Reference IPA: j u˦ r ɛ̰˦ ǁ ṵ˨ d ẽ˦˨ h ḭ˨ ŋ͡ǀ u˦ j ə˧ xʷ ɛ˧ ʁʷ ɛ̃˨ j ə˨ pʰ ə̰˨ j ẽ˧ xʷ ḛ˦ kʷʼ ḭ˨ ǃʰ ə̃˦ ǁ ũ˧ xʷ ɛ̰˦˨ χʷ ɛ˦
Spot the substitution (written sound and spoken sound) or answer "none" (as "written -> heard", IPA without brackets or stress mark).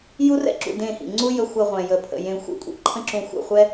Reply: none